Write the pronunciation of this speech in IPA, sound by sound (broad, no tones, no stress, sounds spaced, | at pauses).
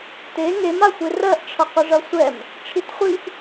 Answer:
t e ŋ e m a xʷ e r ɜ ʔ ʈ͡ʂʰ ʌ q ə ʐ ʌ sʷ ɛ m | ʈ͡ʂʰ i t χʷ i ʔ